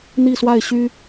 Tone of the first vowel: falling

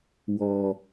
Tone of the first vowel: low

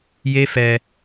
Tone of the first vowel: high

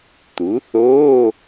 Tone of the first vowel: rising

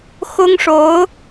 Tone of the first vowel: high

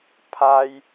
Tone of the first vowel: high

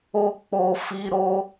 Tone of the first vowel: high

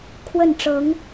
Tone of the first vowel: falling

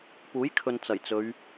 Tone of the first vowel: rising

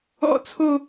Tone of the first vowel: high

